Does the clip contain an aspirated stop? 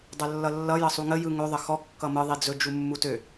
no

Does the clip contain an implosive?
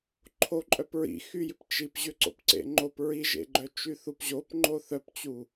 no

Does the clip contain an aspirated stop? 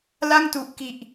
no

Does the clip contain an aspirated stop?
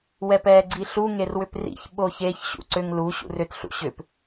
no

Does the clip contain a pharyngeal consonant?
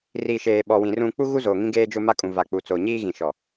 no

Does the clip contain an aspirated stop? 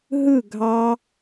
no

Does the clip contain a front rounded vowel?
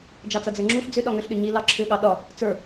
yes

